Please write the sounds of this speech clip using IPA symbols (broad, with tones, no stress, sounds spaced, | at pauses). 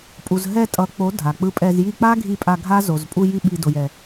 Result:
pʼ u˨ z ɦ ɛ˧ tʼ ʌ˨˦ k͡p o˨˦ dʱ a˨ k͡p ɯ˧ pʼ ɛ˧ z j i˧ k͡p a˦ ɡʱ i˧ pʼ a˧ ɡʱ a˦ z o˨ z pʼ u˧ j i˧ ɓ i˧ d o˧ j ɛ˧